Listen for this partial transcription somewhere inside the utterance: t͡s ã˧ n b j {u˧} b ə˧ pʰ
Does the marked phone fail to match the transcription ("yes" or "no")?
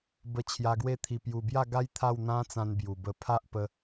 yes